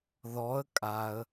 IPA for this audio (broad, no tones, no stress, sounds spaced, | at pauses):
ð ɔ ə̯ kʼ a ə̯